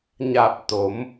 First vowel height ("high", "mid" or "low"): low